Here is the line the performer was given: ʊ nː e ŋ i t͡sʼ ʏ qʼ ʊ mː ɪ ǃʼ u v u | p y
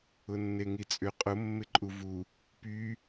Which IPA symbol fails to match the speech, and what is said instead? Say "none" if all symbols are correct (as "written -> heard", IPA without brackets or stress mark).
none